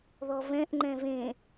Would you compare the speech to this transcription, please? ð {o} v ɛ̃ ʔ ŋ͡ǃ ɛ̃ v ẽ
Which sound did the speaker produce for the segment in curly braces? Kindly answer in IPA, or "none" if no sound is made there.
ɔ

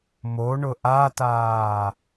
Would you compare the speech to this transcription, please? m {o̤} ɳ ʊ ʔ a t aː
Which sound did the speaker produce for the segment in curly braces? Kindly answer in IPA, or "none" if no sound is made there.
o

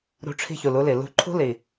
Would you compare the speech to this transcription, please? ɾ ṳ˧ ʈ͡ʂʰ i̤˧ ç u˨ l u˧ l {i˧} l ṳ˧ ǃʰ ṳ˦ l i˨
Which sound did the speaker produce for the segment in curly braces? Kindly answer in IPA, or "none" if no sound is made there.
i˨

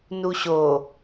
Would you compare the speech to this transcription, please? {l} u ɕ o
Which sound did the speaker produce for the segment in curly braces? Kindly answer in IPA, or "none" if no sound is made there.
n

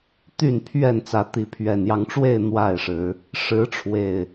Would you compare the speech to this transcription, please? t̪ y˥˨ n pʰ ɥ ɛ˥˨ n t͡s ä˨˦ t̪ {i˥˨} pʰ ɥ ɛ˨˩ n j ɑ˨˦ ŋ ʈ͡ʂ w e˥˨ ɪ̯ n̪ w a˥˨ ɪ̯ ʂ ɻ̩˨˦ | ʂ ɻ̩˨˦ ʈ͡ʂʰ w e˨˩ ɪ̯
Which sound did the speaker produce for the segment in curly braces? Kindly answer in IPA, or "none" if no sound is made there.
i˨˦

